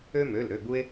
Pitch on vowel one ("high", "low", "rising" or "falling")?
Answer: high